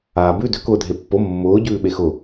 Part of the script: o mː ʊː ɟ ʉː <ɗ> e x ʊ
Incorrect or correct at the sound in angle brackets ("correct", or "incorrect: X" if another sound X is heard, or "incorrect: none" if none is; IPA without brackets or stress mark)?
incorrect: ɓ